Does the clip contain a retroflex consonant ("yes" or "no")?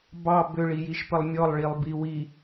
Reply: yes